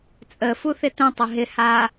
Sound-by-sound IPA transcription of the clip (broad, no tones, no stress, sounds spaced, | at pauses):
t͡sʼ ə f u θ ɪ t ə̃ tˤ ə ɦ ɪ h a